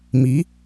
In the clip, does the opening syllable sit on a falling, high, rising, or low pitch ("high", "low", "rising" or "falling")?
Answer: rising